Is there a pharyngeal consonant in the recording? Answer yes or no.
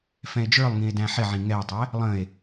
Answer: yes